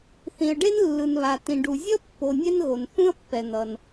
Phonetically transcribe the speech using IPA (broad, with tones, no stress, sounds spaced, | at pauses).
θ ĩ˩ ə̯ ɖ e˥ n lː ɯ˩ n β a˩ t ĩ˩ ɖ u˩ zʲ ʌ˥ pː o˨ nʲ ɛ˥ n ɣ o˩ n θ ũ˥ ə̯ pː ɛ˩ n̪ ʌ˩ n